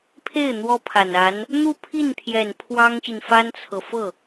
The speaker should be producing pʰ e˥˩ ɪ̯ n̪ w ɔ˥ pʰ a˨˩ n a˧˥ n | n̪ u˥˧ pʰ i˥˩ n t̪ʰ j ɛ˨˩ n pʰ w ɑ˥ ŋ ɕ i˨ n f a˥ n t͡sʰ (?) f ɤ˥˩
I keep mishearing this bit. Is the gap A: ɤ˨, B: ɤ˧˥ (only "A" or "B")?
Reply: A